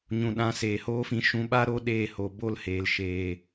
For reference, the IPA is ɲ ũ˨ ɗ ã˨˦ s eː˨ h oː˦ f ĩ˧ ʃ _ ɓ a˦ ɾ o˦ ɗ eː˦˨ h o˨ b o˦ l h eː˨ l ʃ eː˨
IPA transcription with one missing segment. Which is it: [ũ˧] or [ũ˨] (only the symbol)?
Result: ũ˧